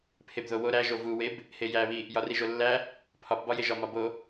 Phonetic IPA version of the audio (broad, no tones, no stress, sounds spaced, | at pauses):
pʰ e b ð o w o ɾ æ ʒ o v u w e b | h e j æ β i | j ɒ r i ʒ o lː æ | pʰ ɒ p b ɒ j e ʒ ɒ m ɒ b o